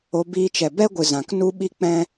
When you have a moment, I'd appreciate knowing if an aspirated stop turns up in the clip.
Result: no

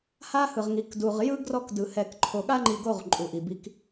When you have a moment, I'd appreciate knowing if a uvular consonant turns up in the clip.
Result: yes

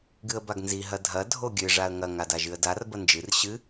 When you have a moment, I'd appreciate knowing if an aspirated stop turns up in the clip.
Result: no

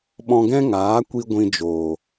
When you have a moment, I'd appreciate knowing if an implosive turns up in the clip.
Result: yes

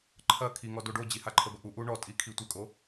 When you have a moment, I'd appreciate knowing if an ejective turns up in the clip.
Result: yes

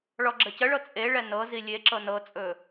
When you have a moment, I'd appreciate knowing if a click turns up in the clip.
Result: yes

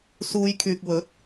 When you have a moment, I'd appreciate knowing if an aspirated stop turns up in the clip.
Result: yes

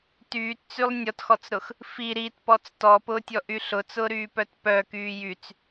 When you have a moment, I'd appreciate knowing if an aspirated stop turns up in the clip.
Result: no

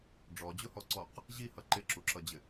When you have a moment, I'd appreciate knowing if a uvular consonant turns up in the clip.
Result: yes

